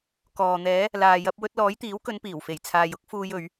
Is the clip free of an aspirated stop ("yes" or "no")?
no